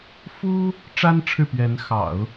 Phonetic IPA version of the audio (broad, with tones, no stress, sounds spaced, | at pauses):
f u˥ | ʈ͡ʂ a˥ n ʈ͡ʂʰ ɻ̩˥˩ p ɥ ɛ˧˥ n x ɑ̰˨˩˦ ʊ̯